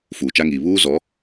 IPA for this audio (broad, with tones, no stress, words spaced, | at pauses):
fuː˨t͡ʃa˦ŋiː˨ βuː˦zɔ˨˦